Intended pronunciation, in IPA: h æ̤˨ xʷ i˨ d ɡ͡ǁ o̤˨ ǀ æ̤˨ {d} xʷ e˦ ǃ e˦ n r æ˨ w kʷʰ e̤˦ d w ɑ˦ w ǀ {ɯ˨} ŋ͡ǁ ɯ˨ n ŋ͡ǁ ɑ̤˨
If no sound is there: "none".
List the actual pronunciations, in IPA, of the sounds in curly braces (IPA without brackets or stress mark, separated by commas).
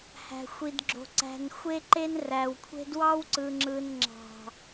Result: n, ɯ˨